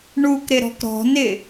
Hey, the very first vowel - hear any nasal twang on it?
no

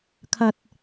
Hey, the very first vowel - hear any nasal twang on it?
no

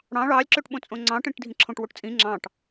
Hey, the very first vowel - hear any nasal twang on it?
yes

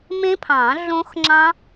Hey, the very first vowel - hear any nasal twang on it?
yes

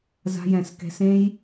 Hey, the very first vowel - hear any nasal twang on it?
no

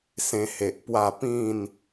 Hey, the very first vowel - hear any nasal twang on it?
yes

